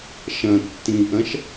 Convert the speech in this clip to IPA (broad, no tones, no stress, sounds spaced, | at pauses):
ʃ ɐ̃ tː ĩ ʔ ɐ̃ ʃ